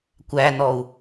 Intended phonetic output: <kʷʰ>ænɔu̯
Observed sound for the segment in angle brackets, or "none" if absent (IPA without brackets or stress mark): kʷ